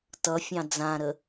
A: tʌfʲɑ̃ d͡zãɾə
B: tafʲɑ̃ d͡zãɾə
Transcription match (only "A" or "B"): A